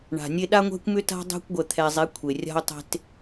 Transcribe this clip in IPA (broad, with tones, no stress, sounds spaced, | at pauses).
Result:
ɳ a̤˨ nʲ e˦ ɗ a˦ ŋʷ ɛ̤˦ kʷ m ʏ˦ t a̤˦ dˤ e̤˦ kʷ ɡʷ ɛ˨ t̪ʰ ɛ˨ zˤ e˨˦ kʷʰ e˨ rʲ a̤˦ ʊ̯ tˤ e̤˦ t